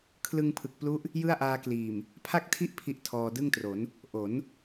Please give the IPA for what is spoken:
kʰ l ɯ˧ ŋ pʰ ɯ˨˩ k̚ p l u˦˥ ʔ | j ɯ˥˩ a̯ ʔ aː˧ k l iː˨˩ m | pʰ a˥˩ k̚ tʰ i˥˩ ʔ pʰ i˥˩ ʔ tʰ ɔː˧ d ɯ˥˩ ŋ t r o˩˦ n | ʔ o˩˦ n

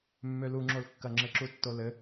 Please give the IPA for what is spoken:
mː ø l u ŋ͡ǁ o l kː ɐ ŋ͡ǁ ɘ ǁ u tː o l ɘ

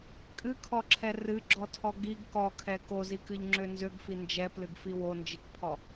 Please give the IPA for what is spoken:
kʼ ɨ kʰ ɔ ǁʰ ɛ r ɨ ɡ͡ǁ ɔ tʰ ɔ ɡ i ɡ k ɔ kʰ ɛ k o z i k ɨ ʎ ŋ͡ǁ ø n z ø ɡ f i n d͡ʒ ɛ p l ɨ ɡ f i w o n d͡ʒ i k pʰ ɔ

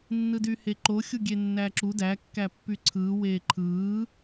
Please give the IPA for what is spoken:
nː ɯ d y h e ǃ o xʲ u ɡʲ e nː æ ǁ u d æ kː æ pː y ǀʰ ɯː w eː ǃʰ ɯː

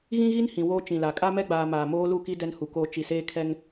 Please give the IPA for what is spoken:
ɣ ĩ˦ ɣ i˦ n h ĩ˨ w oː˦ t͡ʃ ĩ˨ l a˨ kʼ a˦ m ɛ˦ ɡ͡b aː˨ m aː˨ m oː˦ l u˦˨ k i˦ d ɛ˦ n h u˨ k oː˦ t͡ʃ i˨ s eː˦ kʰ ɛ˦ ŋ

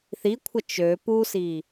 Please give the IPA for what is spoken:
θ i kʷʰ ə t͡ʃ ø p u s i

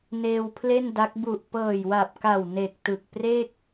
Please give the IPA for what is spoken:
n eː˧ w pʰ l e˥˩ n d a˦˥ k̚ b u˨˩ ʔ p ɤː˨˩ j w a˨˩ p̚ k a˨˩ w n e˨˩ k̚ t ɯ˨˩ k̚ p r e˥˩ k̚

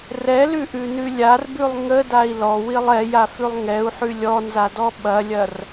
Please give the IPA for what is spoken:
r ɛ l ʉ ʔ ʉ n ʉ lʲ a r b ʉ lˠ ŋ ə d a i̯ l ɔ w i lˠ ɛ j a f ʉ lˠ ŋ ɛ u̯ ħ ʉ lʲ ɔ n z a d ɔ ɓ ɐ lʲ ɐ r

